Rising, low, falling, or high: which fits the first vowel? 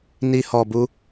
high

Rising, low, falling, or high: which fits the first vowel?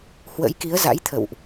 rising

